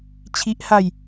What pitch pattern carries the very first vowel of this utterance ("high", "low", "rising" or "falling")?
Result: high